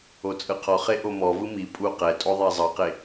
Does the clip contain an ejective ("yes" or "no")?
yes